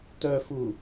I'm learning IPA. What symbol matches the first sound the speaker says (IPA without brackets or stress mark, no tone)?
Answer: t